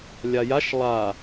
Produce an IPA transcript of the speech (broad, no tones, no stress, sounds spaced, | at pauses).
lʲ a j a ʃ lˠ a